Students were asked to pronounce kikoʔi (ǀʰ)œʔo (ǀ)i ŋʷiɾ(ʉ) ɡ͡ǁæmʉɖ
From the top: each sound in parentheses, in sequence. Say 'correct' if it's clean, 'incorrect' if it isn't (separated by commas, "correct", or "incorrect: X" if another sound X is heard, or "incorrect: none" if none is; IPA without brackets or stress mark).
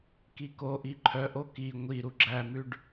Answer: incorrect: ǃʰ, incorrect: k, incorrect: u